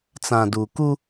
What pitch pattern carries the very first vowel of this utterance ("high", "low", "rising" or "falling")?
low